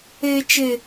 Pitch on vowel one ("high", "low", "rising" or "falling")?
high